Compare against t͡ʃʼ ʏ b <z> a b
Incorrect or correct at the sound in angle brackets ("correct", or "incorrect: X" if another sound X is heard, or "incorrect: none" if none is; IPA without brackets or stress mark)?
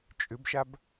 incorrect: ʃ